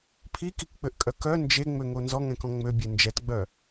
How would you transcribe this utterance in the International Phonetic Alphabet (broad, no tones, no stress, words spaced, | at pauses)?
pʰikikk͡pøʔkʼœ kœ nd͡ʒeŋ͡møŋo nzɔŋɛ̃kɔ̃ ŋ͡møbʲe nd͡ʒɛtɡ͡bœ